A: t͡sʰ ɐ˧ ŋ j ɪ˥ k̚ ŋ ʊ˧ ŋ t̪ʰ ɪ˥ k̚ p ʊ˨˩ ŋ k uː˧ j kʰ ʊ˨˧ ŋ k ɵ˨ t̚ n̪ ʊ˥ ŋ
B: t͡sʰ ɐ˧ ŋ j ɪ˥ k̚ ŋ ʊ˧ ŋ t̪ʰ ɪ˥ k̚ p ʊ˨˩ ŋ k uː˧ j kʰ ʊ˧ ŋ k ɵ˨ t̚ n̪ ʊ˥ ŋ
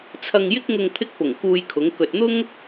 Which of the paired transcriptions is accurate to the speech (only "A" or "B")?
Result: A